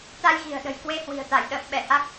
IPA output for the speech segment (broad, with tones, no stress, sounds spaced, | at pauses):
t̪ a˧ j ɣ i̤˨˩ ə̯ ɗ ə̤˨˩ j k w e˧ h w i̤˨˩ ə̯ t̪ a˧˩ j ɗ ə̰ː˧˨ m ɓ ɛ˧˩ h a˦˥ k̚